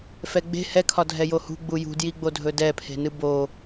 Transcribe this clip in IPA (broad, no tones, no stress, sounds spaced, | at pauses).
f ɛ ɡ͡b e̤ h ɛ kʰ ɒ dʱ ɛ j o h ṳ ɡ͡b u j ṳ d j i ɡ͡b o dʱ ɵ d ɛ pʰ e̤ n ɨ b o